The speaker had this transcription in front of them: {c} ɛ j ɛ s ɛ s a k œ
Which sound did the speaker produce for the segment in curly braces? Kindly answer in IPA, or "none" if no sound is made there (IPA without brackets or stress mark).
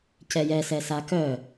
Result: c